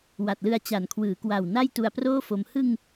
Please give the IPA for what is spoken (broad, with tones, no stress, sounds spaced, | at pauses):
w a˨˩ t̚ l ɯ˧ a̯ t͡ɕ a˩˦ n kʰ w ɯː˩˦ k w a˨˩ w n a˥˩ j t u˧ a̯ p r oː˥˩ f o˧ m h ɯ˧ ŋ